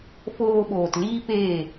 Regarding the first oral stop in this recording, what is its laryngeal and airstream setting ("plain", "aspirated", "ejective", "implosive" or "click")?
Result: implosive